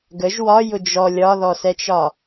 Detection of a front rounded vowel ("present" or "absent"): absent